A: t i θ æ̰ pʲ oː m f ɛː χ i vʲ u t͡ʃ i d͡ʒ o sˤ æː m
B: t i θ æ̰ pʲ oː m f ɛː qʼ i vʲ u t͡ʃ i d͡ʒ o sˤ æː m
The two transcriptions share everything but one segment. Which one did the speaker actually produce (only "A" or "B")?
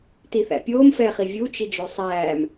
A